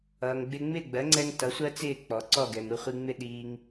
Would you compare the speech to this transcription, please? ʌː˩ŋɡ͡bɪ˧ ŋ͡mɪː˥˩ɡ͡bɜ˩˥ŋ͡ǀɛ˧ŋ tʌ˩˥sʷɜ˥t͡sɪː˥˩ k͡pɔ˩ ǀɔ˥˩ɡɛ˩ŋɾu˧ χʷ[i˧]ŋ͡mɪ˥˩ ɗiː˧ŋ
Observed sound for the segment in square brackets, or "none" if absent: i˧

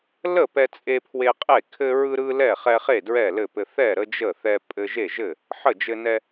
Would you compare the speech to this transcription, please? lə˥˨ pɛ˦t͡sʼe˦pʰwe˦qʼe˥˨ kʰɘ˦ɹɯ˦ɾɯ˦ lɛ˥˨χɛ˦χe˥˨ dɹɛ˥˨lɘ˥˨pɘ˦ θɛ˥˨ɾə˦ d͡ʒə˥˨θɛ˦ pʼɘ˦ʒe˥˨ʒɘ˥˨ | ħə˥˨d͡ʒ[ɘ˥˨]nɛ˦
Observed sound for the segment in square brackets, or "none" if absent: ɘ˦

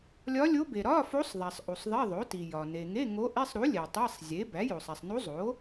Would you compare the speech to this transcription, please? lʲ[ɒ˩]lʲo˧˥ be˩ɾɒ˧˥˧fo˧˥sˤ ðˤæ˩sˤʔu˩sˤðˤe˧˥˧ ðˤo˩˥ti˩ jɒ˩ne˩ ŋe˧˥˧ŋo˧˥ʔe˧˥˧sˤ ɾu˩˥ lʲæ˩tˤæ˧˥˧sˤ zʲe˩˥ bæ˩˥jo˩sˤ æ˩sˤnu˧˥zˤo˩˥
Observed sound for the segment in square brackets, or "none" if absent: ɒ˧˥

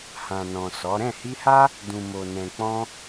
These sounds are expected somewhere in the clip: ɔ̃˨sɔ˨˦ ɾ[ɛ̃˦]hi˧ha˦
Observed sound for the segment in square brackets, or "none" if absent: ɛ̃˦˨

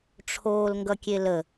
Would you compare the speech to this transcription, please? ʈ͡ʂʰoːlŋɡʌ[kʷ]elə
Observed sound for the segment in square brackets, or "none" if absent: kʲ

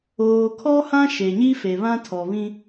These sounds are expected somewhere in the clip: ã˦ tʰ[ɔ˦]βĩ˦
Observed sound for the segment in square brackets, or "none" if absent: ɔ˨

